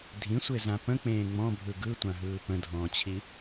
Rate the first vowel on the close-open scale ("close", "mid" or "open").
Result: close